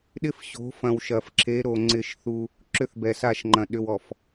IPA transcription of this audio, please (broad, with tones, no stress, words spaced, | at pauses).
ɗɪ˦fɕo̤˨˦fɐ̃˨w ʃɐ˨fǁʰe˨˦ ɾo˨ ŋ͡ǀɪ˦˨ʃθu˦ | ǁʏ˦θbɛ˨sa˦˨ʃŋ͡ǃɐ̃˨ ɗʏ˨wɔ˨f